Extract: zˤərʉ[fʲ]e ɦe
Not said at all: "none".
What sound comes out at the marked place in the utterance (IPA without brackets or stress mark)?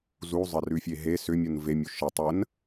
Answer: fʲ